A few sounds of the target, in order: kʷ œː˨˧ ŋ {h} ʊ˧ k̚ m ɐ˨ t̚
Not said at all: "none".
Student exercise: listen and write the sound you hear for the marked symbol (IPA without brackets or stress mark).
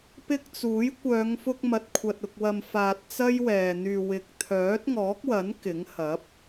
f